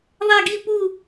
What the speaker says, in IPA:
ðˤ ɛ˥˧ ɡ i˥˧ p u˥˧

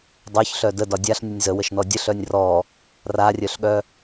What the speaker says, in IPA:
dˤ œ ç ɬ œ d ə d ɒ dʲ a ɬ nʲ ə nʲ z ə w ə ʃ n ɔ dʲ ə ɬ œ nʲ r ɔ | r a rʲ œ ɬ ɠ œ

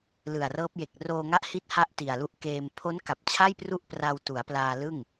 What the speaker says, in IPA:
l ɯ˨˩ a̯ r ɤː˦˥ p̚ j e˨˩ k̚ r oː˧ ŋ a˦˥ ʔ h i˦˥ t̚ h a˥˩ ʔ t i˨˩ a̯ l u˦˥ ʔ k eː˧ m pʰ o˦˥ n k a˨˩ p̚ t͡ɕʰ a˥˩ j p r u˥˩ ʔ p r a˧ w t u˩˦ a̯ p l aː˧ l ɯ˥˩ ŋ

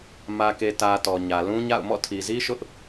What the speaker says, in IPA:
m ä˨ k e˨ t ä˨ t ɔ˨ ɲ ä˨ l ũ˦ ɲ a̰˦˨ ʊ̯ m ɔ̰˦˨ tʰ i˨ z i˦ ʃ ʊ˦ ʔ

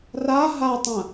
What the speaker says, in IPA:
r a ɦ a tˤ ɐ̃

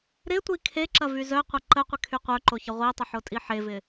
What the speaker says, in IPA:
ɾ ɪ tʷ i kʰ e ǁ ɐ v y z œ qʷ ɐ ǃ ə qʷ ɪ kʰ y qʷ œ ǃ o ç ə ʁʷ i tˤ ə ħ o tʼ i ħ e v ɪ

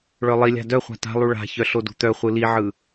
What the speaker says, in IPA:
ɭ œ lˠ i lʲ a̤ d œ χʷ a̤ t a̤ lˠ u ɭ a̤ ç œ ɬ o d ṳ t̪ œ χʷ ɯ l i ʕ ɯ

